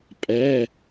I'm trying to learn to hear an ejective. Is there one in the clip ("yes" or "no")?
yes